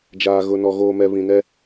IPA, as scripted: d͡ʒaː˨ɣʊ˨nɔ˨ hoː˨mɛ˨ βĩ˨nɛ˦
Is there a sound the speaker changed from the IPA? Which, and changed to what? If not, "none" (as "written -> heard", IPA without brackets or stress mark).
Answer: h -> ɣ